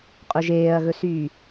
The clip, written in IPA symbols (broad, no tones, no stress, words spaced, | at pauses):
qʼɵʒeːɐ̯ɣɵsyː